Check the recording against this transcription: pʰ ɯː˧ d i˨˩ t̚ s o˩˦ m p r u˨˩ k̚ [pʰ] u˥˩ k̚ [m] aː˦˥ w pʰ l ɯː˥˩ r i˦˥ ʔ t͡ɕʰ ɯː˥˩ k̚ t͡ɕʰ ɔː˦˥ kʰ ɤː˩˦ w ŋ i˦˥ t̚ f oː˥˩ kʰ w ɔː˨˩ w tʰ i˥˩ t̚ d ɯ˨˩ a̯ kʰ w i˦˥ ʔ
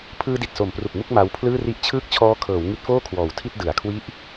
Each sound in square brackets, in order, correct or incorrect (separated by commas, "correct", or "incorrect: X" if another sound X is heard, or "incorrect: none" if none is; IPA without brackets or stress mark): incorrect: m, correct